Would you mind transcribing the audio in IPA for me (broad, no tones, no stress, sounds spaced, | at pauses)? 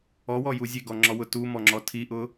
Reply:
ɔ w ɔ j u zʲ e ɡ ɔ ŋ͡ǁ ɔ w ʊ t u m ɔ ŋ͡ǁ ɔ tʰ i ʔ ʊ